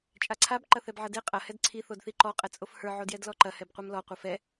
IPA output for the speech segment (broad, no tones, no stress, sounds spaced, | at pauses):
t͡ʃʼ a ǀʰ a b ǃ ɐ θ ɛ b ʕ ɐ d e qʼ ɐ h ɛ d ǀʰ i θ o d θ i ǃ ɔ qʼ ɛ t͡sʼ o f h ə˞ ʕ o d j ɛ d l ɔ ǃ ɐ h ɛ b qʷ ɛ m l ɔ qʷ ɐ f ɛ